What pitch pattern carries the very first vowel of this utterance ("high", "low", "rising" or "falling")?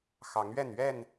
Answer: rising